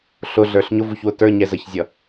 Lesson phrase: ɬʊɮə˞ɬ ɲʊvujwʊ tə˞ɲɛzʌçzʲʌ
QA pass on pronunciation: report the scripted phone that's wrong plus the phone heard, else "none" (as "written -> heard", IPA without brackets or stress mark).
j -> ç